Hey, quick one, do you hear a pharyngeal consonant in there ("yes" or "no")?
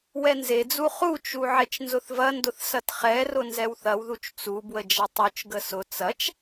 yes